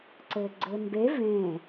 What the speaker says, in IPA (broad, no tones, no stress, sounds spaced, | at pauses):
ǀ ɘː ɡ͡ǀ ɘː m b e v ẽ